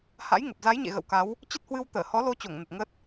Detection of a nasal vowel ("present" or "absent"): absent